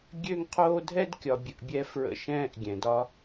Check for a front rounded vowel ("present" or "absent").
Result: present